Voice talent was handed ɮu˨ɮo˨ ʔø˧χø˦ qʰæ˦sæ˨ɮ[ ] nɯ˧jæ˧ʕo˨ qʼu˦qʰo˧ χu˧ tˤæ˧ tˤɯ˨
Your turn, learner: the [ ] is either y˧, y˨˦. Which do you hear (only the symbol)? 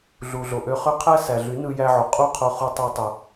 y˨˦